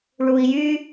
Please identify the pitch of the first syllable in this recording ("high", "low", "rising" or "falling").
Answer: low